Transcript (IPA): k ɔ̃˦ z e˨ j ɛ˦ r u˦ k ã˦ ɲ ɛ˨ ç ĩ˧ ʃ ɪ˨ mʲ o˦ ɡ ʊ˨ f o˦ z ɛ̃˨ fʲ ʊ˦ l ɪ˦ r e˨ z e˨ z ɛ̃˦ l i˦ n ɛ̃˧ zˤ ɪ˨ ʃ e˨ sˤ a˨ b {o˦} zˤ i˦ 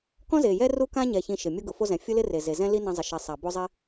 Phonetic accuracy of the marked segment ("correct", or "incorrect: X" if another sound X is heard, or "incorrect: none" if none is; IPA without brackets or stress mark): correct